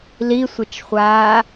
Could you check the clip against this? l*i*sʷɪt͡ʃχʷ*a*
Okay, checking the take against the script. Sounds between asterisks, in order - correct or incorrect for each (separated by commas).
correct, incorrect